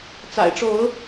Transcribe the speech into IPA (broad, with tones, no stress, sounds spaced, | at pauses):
t͡s a̰˨˩ ɪ̯ ʈ͡ʂ o˨˦ ʊ̯